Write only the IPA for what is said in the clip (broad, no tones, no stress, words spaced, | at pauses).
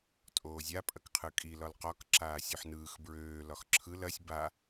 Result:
tʼoːzʲa pʼɐkqʰɯkʼi lɒlqɒk ǁaːsʲoħnɯːx bɹøː lɒxǁʰɯl ɐsʲ ba